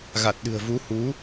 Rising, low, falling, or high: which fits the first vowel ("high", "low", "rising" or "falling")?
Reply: low